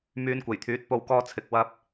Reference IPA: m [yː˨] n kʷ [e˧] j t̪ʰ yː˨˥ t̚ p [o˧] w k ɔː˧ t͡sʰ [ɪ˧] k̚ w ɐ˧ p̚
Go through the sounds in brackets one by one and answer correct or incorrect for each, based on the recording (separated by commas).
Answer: incorrect, incorrect, incorrect, incorrect